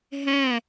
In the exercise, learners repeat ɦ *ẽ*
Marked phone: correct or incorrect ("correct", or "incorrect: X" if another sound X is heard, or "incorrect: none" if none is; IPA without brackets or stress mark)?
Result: incorrect: ɛ̃